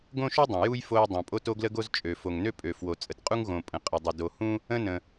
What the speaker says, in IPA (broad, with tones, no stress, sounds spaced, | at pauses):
ɡ õ˥ ʃ u˥ dˤ ə̃˩ j u˥ j f o˥ j dˤ õ˩ pʼ o˥ t o˥ ɡ l ə˥ ɡ o˥ z t͡ʃʼ ø˩ f o˩ ŋ n ø˥ pʼ ø˩ f w o˩ t͡sʼ ə˩ t qʼ u˥ ŋ ɣ õ˩ pʼ ə̃˩ qʼ ə˩ dˤ ə˩ d o˩ h ũ˥ | ə̃˥ n ə̃˩